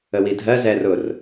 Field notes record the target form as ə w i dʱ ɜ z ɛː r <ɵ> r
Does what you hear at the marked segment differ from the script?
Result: yes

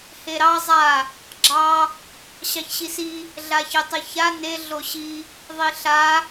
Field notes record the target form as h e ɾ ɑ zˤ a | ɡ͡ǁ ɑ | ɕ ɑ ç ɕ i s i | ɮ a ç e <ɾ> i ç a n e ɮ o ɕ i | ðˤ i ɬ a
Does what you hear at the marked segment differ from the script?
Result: yes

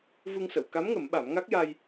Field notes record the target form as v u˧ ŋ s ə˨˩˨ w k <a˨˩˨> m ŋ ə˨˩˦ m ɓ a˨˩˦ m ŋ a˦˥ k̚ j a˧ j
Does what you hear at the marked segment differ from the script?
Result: yes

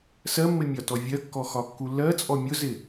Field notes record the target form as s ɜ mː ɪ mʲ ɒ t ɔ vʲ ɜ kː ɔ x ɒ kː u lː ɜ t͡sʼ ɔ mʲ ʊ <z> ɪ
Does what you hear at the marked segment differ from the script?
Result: no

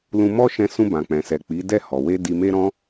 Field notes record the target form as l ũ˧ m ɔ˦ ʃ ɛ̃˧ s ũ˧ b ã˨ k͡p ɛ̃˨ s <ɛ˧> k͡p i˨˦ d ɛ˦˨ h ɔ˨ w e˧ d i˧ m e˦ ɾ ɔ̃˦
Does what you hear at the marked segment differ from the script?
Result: yes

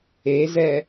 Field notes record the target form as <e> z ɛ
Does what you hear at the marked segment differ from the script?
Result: no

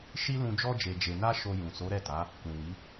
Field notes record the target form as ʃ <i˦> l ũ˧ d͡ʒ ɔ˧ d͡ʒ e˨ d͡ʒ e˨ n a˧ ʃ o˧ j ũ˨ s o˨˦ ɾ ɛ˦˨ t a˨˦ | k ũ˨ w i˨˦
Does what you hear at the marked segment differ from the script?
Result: no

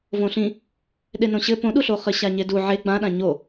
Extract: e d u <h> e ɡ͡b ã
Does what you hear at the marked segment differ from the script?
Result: yes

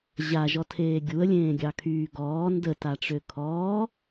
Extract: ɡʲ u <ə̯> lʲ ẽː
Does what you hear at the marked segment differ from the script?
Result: no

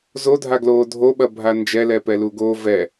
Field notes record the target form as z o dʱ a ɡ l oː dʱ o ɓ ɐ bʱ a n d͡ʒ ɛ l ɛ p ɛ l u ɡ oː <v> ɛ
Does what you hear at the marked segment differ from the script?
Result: no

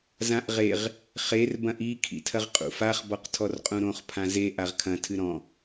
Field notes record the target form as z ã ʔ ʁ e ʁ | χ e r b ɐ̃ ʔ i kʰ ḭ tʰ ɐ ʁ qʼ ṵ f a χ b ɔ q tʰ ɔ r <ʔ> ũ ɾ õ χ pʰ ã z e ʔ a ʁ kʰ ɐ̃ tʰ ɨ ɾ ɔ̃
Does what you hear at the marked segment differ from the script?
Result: yes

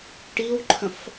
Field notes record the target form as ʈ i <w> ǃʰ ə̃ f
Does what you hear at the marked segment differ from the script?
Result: no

